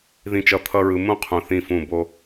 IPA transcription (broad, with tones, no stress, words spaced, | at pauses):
ðĩ˧t͡ʃʌ˧ t̪ʰʌ˦ɹɯ˧ mũ˦ qʰũ˨ θĩ˦˨fũ˦˨ bo˦